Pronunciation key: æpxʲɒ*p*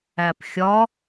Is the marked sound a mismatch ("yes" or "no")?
yes